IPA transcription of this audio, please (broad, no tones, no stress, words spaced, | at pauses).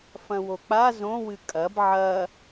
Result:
fɐ̃wok͡pa zõwɨ kʼɐb ʕɐ